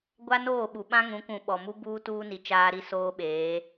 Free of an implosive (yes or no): no